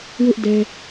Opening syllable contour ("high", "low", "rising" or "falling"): high